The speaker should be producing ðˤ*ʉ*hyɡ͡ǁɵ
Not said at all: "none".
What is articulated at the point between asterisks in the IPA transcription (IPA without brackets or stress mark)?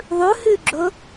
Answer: ʉ